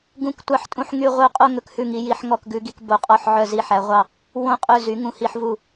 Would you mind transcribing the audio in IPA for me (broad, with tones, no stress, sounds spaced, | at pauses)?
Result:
ɡ ũ˨˦ k tʷ ɑ˦˨ ħ tʼ ũ˦˨ ħ ŋ y˦˨ ʁʷ œ˦˨ qʼ o˦˨ ŋ ɵ˦˨ k h ʉ˦˨ ŋ i˨˦ j i˨˦ ħ ŋ ɔ˦˨ k ɡ ʉ˨˦ ɡ i˨˦ k b o˨˦ qʼ ɔ˦˨ ħ ʕ œ˦˨ z i˦˨ ħ æ˨˦ ʁʷ ɑ˦˨ | w õ˦˨ qʼ ɵ˦˨ z y˨˦ ŋ ũ˨˦ h i˨˦ ħ v u˦˨